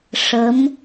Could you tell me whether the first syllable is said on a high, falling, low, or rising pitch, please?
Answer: rising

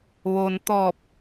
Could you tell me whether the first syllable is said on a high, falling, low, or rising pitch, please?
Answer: low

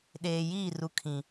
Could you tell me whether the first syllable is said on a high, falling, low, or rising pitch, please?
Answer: low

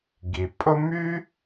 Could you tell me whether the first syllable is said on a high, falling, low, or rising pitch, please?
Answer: low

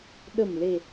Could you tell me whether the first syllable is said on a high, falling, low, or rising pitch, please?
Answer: low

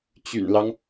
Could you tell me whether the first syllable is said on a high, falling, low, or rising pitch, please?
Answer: low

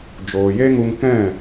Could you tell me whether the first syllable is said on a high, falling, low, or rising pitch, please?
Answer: low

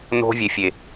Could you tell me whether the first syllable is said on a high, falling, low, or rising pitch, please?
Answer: high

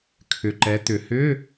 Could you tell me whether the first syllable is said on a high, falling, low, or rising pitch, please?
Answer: low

